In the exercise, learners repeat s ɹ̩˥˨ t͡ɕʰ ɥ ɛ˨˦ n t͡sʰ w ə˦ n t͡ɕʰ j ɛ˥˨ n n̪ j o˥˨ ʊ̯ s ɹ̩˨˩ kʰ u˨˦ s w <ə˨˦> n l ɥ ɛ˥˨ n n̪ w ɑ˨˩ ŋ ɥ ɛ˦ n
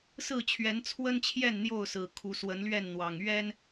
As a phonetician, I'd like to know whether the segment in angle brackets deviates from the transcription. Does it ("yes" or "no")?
no